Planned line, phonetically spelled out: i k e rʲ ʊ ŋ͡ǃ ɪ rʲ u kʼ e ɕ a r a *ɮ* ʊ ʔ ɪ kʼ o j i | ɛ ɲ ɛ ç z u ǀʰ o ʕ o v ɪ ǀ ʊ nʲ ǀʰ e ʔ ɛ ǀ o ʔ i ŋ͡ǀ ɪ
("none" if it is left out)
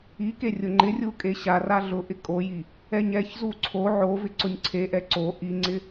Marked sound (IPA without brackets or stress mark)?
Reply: ɮ